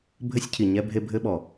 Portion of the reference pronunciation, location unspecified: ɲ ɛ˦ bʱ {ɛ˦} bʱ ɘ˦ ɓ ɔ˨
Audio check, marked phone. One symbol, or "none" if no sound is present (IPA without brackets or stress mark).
e˦